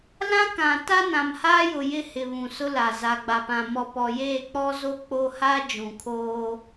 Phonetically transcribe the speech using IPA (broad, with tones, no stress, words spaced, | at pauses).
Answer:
lã˦kã˨ ta˦nã˨mhaː˦jʊ˨ jɪ˦hɪ˨ βũ˨sʊ˦la˨ za˨ ɡ͡ba˨pã˨ mɔ˨pɔ˨ jeː˦˨k͡pɔ˦zo˦ k͡po˦ ha˦ d͡ʒũ˨kʰoː˦